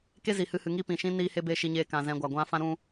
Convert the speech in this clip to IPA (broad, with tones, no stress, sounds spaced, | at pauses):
k e˦ z i˨ h ɨ˧ h ɨ˨ ŋ i˦ p ĩ˨ ʃ ĩ˦ n iː˦ h e˦ b e˦˨ ʃ i˧ ɲ eː˧ k ã˨ z ɛ̃˧ ɡʷ a˨ ɡʷ ã˦ f ã˦ ɾ ũ˦